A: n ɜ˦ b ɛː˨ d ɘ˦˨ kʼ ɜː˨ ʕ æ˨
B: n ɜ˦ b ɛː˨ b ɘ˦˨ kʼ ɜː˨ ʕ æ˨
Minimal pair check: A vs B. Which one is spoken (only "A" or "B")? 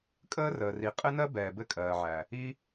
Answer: B